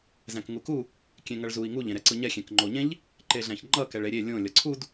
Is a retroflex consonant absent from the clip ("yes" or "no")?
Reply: no